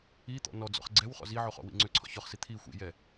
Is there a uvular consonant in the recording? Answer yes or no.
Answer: yes